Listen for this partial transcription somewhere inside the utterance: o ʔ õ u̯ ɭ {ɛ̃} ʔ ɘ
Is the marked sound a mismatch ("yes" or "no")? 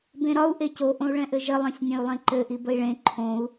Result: no